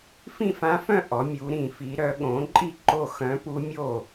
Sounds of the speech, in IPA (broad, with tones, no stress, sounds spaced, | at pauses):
f ĩ˥˩ f ã˧˥ f œ̃˥˩ ʔ ɔ˩˧ mʲ u˩˧ ɾ ĩ˧˩˧ f i˩˧ ɾ œ˩˧ ɠ õ˩˥ ǃʼ i˥˩ ǃ o˥˩ x œ̃˧˥ p u˧˥ mʲ o˥˩